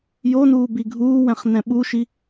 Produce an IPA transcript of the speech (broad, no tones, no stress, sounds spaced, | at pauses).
j o n uː b i ɡʱ uː w ɛ̃ χ n ɛ̃ ɓ u ʃ i